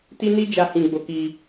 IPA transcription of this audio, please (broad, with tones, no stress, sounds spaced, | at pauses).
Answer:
t i˦ n i˦ d͡ʒ a˧ h ĩ˧ ɡ͡b o˧ k i˧